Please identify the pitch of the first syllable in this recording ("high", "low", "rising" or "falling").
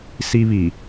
high